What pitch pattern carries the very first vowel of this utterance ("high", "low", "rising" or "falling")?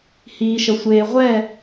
low